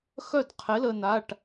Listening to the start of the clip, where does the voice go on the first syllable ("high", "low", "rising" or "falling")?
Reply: falling